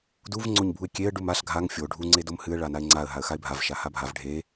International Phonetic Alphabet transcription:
d u v ŋ͡ǀ o ɲ bʱ u ɪ̯ kʲ e ə̯ ɖ u m a ɬ ɡʱ a ŋ fʲ o ɖʱ u ŋ͡ǀ e d o m h ɨ ə̯ ɭ a n a ɪ̯ ŋ͡ǀ a ə̯ ɦ a ə̯ x a ɪ̯ bʱ a v ʃ a h a bʱ a v ɖʱ e

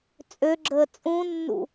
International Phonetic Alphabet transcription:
t͡sʼ ø ɡ͡ǁ əː t͡sʼ ũ nː ṵ

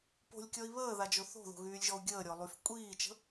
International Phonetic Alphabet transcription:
p o̤ lʲ kʲ ɔ i̯ β əː ð a d͡ʒ o θ o̤ ð o̤ ɣ yː lʲ ʒ ɔ u̯ ɡʲ əː ɾʲ ɔ lˠ y f kʷʼ iː t͡ʃ ə̤

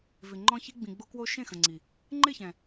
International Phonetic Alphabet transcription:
v ɪ˨ ŋ͡ǃ ɔ̃˧ ç i˧ ɡ͡b ĩ˨ ɡ͡b o˧ k w o˧ ʃ ẽ˦˨ x ə̃˨ ŋ͡ǀ i˨ | ŋ͡ǃ ɪ˦˨ ç ɛ̃˨

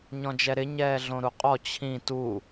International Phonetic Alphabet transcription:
ɲ ɔ̃ d͡ʒ ɛ ɾ ɪ ɲ ɛː ɮ õ ɾ u qʼ ɔ t͡ɕʰ ĩ t u

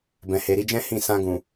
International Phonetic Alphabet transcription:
b ɛ̃˨ h e˨ ɾ i˧ d͡ʒ ɛ̃˦ h ĩ˦˨ s ã˧ ɡ ũ˨

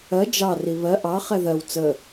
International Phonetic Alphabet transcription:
ɜ d͡ʒ ɑ r i β ɜ ʔ ɑ χ ɛ ð ɜ w t͡s ə

